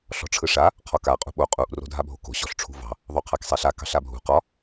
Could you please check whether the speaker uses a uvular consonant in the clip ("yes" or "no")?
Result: yes